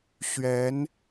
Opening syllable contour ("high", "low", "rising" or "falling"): rising